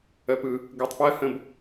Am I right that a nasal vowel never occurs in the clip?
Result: no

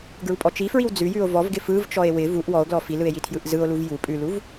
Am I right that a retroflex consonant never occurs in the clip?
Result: yes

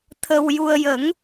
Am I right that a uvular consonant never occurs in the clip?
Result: yes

